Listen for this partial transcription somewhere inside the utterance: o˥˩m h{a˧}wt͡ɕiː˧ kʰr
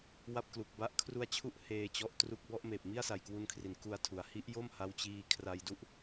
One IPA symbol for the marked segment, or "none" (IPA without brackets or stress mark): a˦˥